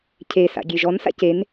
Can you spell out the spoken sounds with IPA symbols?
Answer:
cʰesa̰ ɡʲeʒɔnsa̰ cen

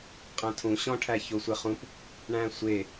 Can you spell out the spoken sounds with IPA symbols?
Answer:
qʼæ̃tʰũ ɕɔ̃ ʈʰæçosʷɛχũp | ɳæ̃sʷe

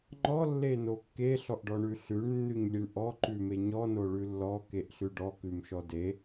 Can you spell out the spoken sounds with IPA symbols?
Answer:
ŋ͡ǃɔ lːenokːe ɬɔʔɖɔɳʉɬʉɳ nːʉɲlʲeɳʔɔ ǃʉmeɲɔ noɭʉlːɔ keʔɬʉɖɔ kʉmʃɔde

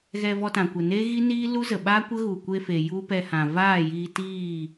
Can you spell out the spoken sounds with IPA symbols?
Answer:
ɣɛ˧vɔ˧tã˨kʷə˨ ne˦ɣi˦niː˦ lu˦zə˨ɓaː˦ kʷə˦ɣu˨kʷe˧fe˨ ju˦pɛ˧hã˨ vaː˦˨jiː˧tiː˦˨

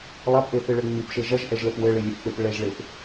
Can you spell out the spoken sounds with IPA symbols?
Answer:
lˠapʔeθɨɭɘ ŋ͡mipʃe ʒɐʒʔɛʒlɘp wɘɭilʲɘpk͡pep ɭɛʒɭep

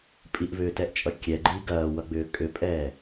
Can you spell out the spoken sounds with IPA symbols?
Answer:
pʼiʔvʏːtɛʔt͡ʃʼʌ kʲɛɡ͡ǃi ɡɐːwʌɡ͡bʏː kʼʏpʼɛː

